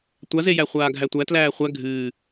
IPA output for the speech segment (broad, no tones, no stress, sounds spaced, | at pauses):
tʷ a z e j æ χʷ aː ɡʱ æ tʷ æ t l æː χʷ æ ɡʱ ɨː